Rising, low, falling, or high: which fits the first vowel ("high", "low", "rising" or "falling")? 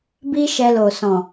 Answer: high